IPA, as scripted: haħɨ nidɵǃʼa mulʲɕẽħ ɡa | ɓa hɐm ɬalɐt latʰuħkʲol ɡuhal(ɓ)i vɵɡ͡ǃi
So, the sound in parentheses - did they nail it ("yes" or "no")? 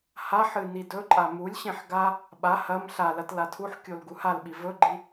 yes